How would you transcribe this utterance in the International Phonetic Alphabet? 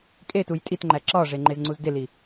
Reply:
kʼetuj tʼitŋ͡ǃæ ǁɒʐe ŋ͡ǃezŋ͡ǀuzdeli

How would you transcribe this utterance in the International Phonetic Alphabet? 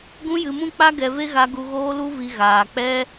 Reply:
ɡũ˦jɨ˧mũ˦k͡pa˦ ɡɛ˧ve˦ ɣa˧ɡu˧ ɣoː˦lu˦vi˧ ɣaː˨k͡pɛ˦

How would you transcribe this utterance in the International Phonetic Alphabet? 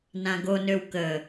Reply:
nãɡonøw kə

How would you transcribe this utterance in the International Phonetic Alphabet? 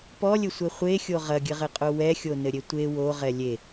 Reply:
pɔlʲɘsʷɛ χʷexʲo ʁɐɡʲɘʁɘqʼo wɛxʲonɘɾʲe tʷe woʁɛ lʲe

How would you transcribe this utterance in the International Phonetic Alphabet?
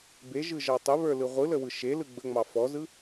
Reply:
beʒɯʒɑ tˤəβə˞lɯ ʁʷɯləwɯ ʃelɯ ɡ͡bəŋ͡mɑ fɔzɯ

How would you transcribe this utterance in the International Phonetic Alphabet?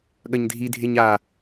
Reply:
ɠɐɲdʱi dʱeɲa

